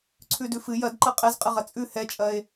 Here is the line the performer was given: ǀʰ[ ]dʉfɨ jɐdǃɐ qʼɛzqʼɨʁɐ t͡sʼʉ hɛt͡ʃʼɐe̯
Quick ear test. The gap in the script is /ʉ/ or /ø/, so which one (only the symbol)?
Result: ʉ